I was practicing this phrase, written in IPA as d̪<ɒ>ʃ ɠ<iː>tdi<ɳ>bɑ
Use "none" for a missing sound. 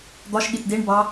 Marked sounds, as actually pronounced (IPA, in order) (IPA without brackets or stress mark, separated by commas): ɒ, i, ɳ